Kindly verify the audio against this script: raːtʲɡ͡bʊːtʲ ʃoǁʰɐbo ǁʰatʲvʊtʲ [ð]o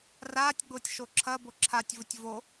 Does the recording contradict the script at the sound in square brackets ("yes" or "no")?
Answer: yes